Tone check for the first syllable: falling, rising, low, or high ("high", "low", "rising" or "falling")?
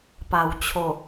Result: low